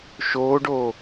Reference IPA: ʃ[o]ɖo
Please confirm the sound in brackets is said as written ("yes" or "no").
no